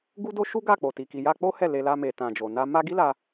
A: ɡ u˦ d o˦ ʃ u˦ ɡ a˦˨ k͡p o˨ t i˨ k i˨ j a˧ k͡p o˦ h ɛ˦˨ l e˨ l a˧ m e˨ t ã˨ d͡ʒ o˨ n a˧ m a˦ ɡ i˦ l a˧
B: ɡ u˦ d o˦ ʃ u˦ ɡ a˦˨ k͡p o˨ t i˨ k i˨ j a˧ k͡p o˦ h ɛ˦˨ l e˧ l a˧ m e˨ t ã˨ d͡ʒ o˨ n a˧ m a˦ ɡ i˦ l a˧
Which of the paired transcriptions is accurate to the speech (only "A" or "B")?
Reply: B